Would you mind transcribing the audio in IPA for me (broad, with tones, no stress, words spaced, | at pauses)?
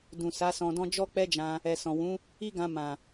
dũ˨sa˨˦ sɔ̃˧dɔ̃˦ d͡ʒɔ˦k͡pɛ˦d͡ʒã˧ | ɛ˨sɔ̃˨ wũ˨˦ | i˦ɡã˧ mã˨